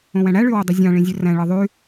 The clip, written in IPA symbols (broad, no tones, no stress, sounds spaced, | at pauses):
õ w æ̃ ɽ æ ɭ y w ø dˤ y zʲ ɑ̃ ɭ ĩ zʲ ø r æ̃ ɭ ɯ ðˤ y